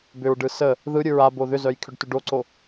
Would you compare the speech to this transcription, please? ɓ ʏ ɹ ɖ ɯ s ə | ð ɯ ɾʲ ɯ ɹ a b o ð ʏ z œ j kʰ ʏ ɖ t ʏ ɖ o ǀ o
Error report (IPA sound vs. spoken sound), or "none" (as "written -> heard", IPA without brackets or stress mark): ɓ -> b